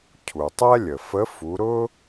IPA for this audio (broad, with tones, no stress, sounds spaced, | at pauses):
cʰ u˩ tˤ ɛ˥ lʲ ə˩ f ə˧˥ f u˩˧ ɾ ʊ˥